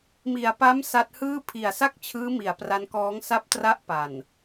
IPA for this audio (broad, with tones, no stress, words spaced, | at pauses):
mi˨˩a̯pa˦˥m sa˦˥t̚hɯː˥˩ pʰi˨˩a̯sa˥˩k̚t͡ɕʰɯː˦˥ mi˨˩a̯pra˦˥nkɔː˦˥ŋ sa˦˥p̚tra˦˥ʔ pa˨˩n